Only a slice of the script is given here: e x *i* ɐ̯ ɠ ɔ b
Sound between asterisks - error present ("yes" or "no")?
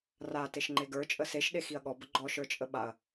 no